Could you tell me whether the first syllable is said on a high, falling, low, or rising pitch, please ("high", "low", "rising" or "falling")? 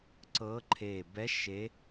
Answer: rising